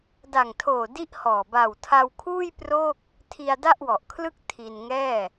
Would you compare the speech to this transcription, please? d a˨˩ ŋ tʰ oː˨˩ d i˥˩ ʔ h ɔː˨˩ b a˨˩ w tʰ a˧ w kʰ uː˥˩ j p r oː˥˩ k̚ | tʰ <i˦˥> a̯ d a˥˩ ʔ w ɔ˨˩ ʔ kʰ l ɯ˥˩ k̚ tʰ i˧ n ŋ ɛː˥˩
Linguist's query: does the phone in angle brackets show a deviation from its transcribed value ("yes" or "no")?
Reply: yes